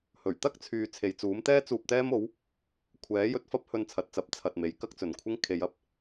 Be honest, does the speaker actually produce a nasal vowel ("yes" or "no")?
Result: no